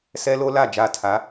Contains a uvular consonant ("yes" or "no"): no